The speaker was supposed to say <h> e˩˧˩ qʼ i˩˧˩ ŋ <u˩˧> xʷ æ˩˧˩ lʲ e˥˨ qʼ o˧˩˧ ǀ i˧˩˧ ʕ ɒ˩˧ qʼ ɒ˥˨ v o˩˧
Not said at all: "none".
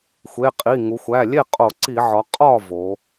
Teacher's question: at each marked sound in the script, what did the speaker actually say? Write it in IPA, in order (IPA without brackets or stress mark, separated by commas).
xʷ, u˩˧